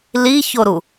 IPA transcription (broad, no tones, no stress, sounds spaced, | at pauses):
l i ç o ɾ u